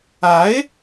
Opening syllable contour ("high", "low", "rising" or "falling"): rising